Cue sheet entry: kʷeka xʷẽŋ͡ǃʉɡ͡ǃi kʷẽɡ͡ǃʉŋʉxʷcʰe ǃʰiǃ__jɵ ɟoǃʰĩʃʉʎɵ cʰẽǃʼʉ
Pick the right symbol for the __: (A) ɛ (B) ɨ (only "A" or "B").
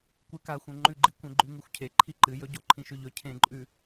B